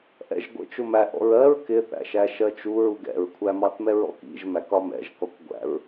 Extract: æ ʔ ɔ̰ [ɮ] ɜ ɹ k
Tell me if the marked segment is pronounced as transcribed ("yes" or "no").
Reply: no